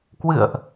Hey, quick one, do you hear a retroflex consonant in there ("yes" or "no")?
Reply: no